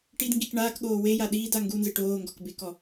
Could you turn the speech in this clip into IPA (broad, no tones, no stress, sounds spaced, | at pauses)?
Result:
ʈ i d ŋ ɡ i k ɳ aː k ɠ oː w e j a ɗ iː d a ŋ ɡ u n z ɪ ʈ oː ŋ ɡ ɔ k b e k ɔ